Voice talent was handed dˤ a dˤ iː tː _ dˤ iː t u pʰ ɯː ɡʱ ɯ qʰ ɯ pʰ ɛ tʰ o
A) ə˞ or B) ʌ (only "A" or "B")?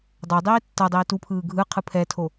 B